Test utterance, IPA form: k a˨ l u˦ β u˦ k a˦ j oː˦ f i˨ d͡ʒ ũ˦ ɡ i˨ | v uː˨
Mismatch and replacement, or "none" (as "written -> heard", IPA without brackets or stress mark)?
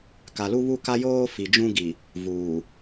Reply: none